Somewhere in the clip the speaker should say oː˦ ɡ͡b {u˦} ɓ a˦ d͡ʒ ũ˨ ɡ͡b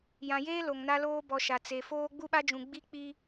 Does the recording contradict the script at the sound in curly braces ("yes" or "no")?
no